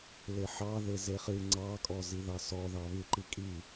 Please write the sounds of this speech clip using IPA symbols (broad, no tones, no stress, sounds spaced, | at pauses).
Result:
l e ħ ɑ ð e z e χ ɨ ŋ͡ǀ ɑ kʼ ɔ z i ð ɑ s ɔ ð ɑ β ɨ ǃ i kʼ i